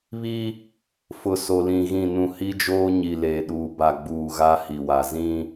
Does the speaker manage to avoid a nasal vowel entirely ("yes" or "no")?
no